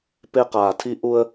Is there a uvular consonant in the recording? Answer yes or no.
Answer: yes